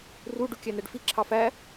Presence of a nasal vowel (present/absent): absent